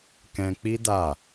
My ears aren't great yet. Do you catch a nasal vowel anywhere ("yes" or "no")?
yes